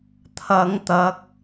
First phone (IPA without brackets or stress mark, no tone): t̪ʰ